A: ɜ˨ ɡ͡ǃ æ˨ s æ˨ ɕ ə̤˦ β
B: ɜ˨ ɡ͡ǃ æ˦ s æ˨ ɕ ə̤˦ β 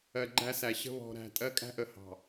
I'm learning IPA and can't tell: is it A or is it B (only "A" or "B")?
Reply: B